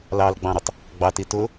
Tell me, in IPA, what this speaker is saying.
l ɑ l ɡ͡b ɑ̃ ɾ ʊ tˤ | ɡ͡b ɑ t i t ʊ

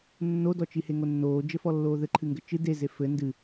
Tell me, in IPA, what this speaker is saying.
nː o d ɔ t͡ʃ i h e ŋ o nː oː d͡ʒ ɘ f ɔ lː oː ð ɘ ǃʰ ɨ ŋ ɡ ɘ t͡ʃ ɨ d e z e f ɘ n d ɨ

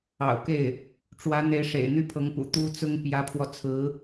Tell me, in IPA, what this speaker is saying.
ɑ̰˨˩ ʊ̯ k e˥˩ ɪ̯ | ʈ͡ʂ w ä˧˥ n̪ e˧˥ ɪ̯ ʂ ḛ˨˩ ɪ̯ n̪ y˥ pʰ ɤ˧˥ ŋ p ṵ˨˩ t̪ u˥ t͡s ʊ˥ ŋ p j ä˧˥ pʰ w ɔ˧ t͡sʰ ɹ̩˧˥

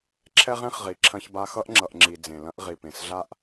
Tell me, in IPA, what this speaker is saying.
ǁʰ ɛ˥ ʁ ẽ˥ χ ʁ i˩ ǁʰ ɐ̃˧ ç b a˧ x ʌ˥ ʔ ŋ͡ǁ ʌ˩ ʔ ŋ͡ǁ i˩ d͡z ẽ˩ l ɐ̃˥ ʔ ʁ i˩ p ẽ˩ s ɮ a˥ ʔ

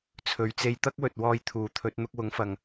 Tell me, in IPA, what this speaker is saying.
t͡sʰ ɵ˨˧ ɥ t͡s e˧ j t̪ ɐ˥ k̚ w ɵ˨ t̚ w ɔː˧ j t̪ʰ uː˨˥ t̪ʰ ɵ˨˥ t̚ n̪ ʊ˧ k̚ w ʊ˨˥ ŋ f ɐ˨ ŋ

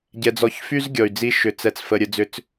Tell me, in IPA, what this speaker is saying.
ɟ ɛ˧ d͡z ɔ˧ ç f y˦ z ɡʲ ɔ˨ y̯ d͡z i˧ ʃ ʏ˧ t͡s ɛ˧ t͡s f ə˧ ɾʲ ə˧ d͡z ʏ˧ t͡s

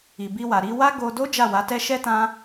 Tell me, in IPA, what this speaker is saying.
i˨ b i˧ w a˨ ɾ i˧ w a˦ ɡ o˧ d o˦ d͡ʒ a˦˨ w a˨˦ t ɛ˦ ʃ ɛ˦ t ã˦

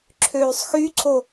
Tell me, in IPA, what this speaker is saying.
ǁʰ øː sˤ x y ǀʰ o

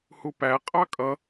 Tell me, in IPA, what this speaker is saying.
h u p æ qʼ ɑ kʼ ʌ

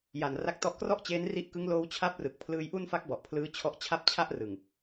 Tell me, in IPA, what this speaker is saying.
j a˨˩ n r a˦˥ k̚ t ɔ˦˥ ʔ k r ɔ˥˩ ʔ t͡ɕ eː˦˥ n r i˦˥ ʔ k ɯ˦˥ ŋ l oː˦˥ w t͡ɕʰ a˥˩ p̚ r ɯ˨˩ k̚ pʰ l ɯː˧ j ʔ u˥˩ n f a˦˥ k̚ b ɔ˨˩ ʔ pʰ l ɯː˦˥ t͡ɕʰ ɔ˦˥ ʔ t͡ɕʰ a˥˩ p̚ t͡ɕʰ a˥˩ ʔ r ɯ˨˩ ŋ

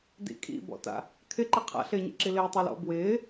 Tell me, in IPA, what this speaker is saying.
d ḭ kʼ ḭ b ɔ̰ t a̰ | kʰ ɪ ǃ ɪ qʰ a̰ ɬ ɪː ɲ ḛ ǁ i l ɪː tˤ i l ɔ̰ b w ɪː

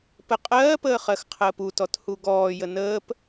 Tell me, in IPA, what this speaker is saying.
p ə qʼ ɜː p əː χ ɜ x qʰ əː p u t ɔ t h u ɡ ɔː j ə n əː p

